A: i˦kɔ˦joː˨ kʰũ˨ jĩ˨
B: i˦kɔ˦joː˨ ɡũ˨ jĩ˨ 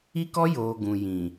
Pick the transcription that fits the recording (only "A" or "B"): B